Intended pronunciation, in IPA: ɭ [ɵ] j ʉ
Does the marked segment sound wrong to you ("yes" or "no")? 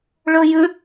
no